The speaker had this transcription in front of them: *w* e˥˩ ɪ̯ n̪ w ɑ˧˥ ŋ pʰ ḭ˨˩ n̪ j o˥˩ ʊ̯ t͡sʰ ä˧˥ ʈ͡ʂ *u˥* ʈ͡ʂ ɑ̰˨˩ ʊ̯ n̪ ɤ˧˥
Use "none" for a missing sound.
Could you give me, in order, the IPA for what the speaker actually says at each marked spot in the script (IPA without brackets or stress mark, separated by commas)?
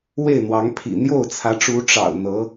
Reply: w, u˧˥